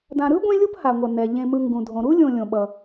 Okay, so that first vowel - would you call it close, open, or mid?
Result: open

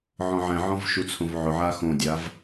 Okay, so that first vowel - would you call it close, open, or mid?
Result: mid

